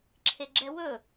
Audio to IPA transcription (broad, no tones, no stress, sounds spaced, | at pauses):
ǁʰ e ɡ͡ǁ ɛ w ɵ